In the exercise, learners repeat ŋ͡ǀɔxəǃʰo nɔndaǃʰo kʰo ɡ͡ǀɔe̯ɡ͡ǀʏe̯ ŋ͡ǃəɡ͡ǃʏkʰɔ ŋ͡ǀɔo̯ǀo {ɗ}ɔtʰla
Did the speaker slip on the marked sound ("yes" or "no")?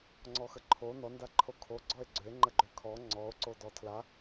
yes